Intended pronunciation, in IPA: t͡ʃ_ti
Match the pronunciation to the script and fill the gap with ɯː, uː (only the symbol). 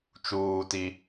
uː